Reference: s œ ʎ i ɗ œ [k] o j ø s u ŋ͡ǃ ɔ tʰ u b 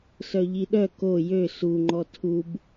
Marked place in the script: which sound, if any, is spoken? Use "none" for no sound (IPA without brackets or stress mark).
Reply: k